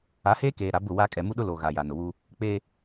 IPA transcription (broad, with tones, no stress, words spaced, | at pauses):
a˨˦heː˦keː˨ ɾa˨˦bʊ˦˨wa˦ kʼɛ˨ mu˦ɗʊ˦lo˨ ɣa˨ ja˨nʊ˨wu˦ | k͡pe˦